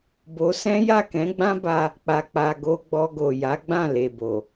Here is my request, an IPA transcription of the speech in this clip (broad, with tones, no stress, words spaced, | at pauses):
bo˧sɛ̃˦ ja˦˨kɛ̃˨˦ɡ͡bã˦ba˧ | k͡pa˨k͡pa˨ ɡo˧ɡ͡bɔ˧ɡo˨ja˨˦ ɡ͡bã˦˨le˨bo˨